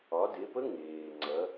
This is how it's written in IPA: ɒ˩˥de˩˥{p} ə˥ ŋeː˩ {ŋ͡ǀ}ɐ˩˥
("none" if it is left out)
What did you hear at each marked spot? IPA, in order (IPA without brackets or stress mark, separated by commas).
p, ŋ͡ǀ